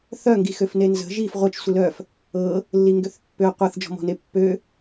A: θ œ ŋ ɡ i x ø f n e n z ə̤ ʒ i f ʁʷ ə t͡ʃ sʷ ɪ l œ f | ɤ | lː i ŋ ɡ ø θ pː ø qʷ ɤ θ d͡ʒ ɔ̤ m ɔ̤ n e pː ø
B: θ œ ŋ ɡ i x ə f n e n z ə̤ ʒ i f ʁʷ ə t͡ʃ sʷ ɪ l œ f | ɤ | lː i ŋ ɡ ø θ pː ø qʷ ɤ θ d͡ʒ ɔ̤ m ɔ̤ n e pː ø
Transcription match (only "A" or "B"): A